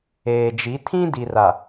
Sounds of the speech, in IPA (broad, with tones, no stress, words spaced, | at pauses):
eː˨d͡ʒi˨˦ tʰĩ˦di˨ra˨